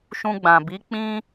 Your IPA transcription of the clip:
ʃ ũ˧ ɡ͡b ã˨ b i˨˦ k͡p ĩ˦

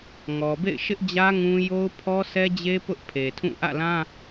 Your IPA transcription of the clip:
ŋ ɔ˨ b ḛ˦˨ ɪ̯ ʃ ɪ˦ ʔ d͡ʑ ä˦ ŋ ũ˦ j o˦ ʊ̯ pʰ ɔ˦ sʰ ɛ˦ d͡ʑ e˦ p ʊ˦ ʔ pʰ e˨ tʰ ũ˦˨ ʔ ä̰˦˨ l ã˦

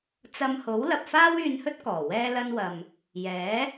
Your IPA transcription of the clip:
t͡s ɐ˧ m h o˨˥ w l ɐ˨ p̚ f aː˥ w yː˧ n h ɵ˥ t̚ k ɔː˨˩ w ɛː˥ l ɐ˥ n w ɐ˧ m | j ɛː˨˥

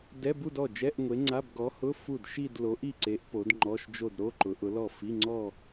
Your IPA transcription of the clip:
d ɛ˧˥˧ b u˥˧ d ɔ˥˩ d͡ʒ ɛ˧˥˧ ʔ ŋʷ e˨˥ ŋ͡ǀ a˧˥˧ b ɡ ɔ˨˥ h ʊ˧˥˧ f u˥˩ d ʃ i˥˧ d l o˨˥ ʔ i˥˩ ǀ e˨˥ ʔ p o˨˥ d ŋ͡ǃ ɔ˧˥˧ ʃ d͡ʒ o˥˧ d ɾ o˧˥˧ ǃ ʊ˨˥ ʔ ʊ˨˥ l ɔ˥˩ f i˧˥˧ ŋ͡ǀ ɔ˥˧

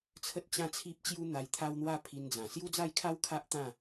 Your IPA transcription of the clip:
t͡sʰ ə˦ t̚ t͡ɕ ã˥˧ t͡sʰ i˦ p̚ t͡ɕ j u˦ n̪ a˧ j t̪ʰ a˦ w n̪ w a˦ pʰ i˧ n d͡z ã˨˩ s j u˦ d͡z a˥˧ j kʰ a˦ w kʰ a˦ ʔ t̪ ã˥˧

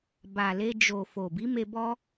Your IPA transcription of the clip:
b a˨ l e˧ d͡ʒ o˨ f o˨ b i˨˦ m e˧ b ɔ˧

